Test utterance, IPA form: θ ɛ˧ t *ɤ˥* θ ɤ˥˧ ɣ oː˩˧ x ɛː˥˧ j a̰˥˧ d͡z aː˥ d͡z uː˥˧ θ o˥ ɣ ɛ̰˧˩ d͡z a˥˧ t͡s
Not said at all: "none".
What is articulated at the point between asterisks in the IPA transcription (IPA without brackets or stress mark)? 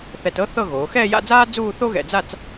ɤ˥